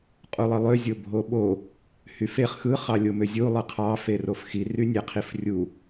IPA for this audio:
qʼulˠɯlˠø zʲobʱoɓo | hyfeχ xɯ χɑlʲomøzʲu lˠɯqʰɑ ferofxi rynʲæqʰifrʲu

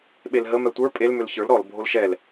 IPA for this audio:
ɓelɦə mɛtʷə˞ pʼel mølçə˞l ɾɔl bʱolʃɛl

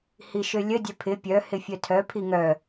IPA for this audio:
hiʃølʲə dʲœpʰɪ pʲœ hɪfʲœtʰœ pʰiŋœ

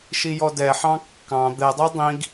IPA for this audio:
ʃijɔdɛħɑ̃ kːɑ̃ d̪ɛdˤəj dˤĩɡ

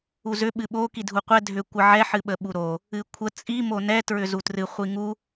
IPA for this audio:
uzʏ ɓɨɓo kidʱuqʷɛ dʱʏ kʷəʕɛ ħɨɓəɓuɾo | ɨkʷʰə t͡sʼi monɛ tɹʏzutrɨ χʷiŋu

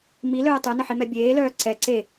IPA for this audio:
milœː tˤœnəħimɛ bʲeːlœː ǀɛ ǀe

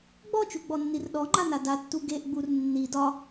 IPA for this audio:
ɡ͡bɔt͡ʃuɡ͡bɔnːir ɗɔŋ͡ǃana datːu ɡeʔɡ͡bur nːi dɒ

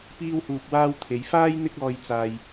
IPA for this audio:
piː˧whuː˨p̚waː˧w t̪ʰe˨˧j faː˥j n̪ɪ˥k̚ɔː˧j t͡saː˧j

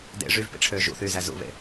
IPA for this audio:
dḛ ʐyvpḭʈ͡ʂʰøː ʒṵθyːzæ zṵβḛ

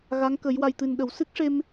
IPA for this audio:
ɣa˧˥ŋkə˨˩˦j wa˨˩jt̪ɨ˨˩n ɗə˨˩˨wsɨ˦˥k̚ʂe˧m

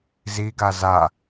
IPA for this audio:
ziɡa za

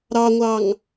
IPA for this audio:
ɾɑŋʷɑŋ

